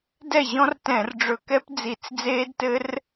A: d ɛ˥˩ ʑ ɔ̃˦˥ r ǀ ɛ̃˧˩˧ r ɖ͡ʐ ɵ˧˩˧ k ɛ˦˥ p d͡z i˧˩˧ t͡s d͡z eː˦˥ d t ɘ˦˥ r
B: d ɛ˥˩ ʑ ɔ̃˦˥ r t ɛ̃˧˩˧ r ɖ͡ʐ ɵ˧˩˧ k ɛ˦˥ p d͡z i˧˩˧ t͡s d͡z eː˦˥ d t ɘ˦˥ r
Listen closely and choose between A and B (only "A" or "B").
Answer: B